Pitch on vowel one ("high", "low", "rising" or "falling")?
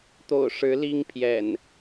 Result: low